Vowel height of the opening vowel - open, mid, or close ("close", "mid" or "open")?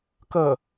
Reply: mid